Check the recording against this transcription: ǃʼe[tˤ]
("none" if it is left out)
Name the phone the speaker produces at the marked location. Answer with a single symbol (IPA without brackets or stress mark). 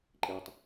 tˤ